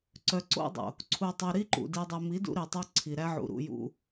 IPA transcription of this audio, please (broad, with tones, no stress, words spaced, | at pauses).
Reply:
ǀœ˨ǀo̰˦dˤo̰˨ | ǀʰu˨tˤɯ˨ ɾi˦ǃṵ˨ di˨dˤo˨mi˨˦ dṵ˦ɾi˨tˤu˦ ǀʰi˨ɾæ˦ʕṵ˨ ɾṵ˨jṵ˨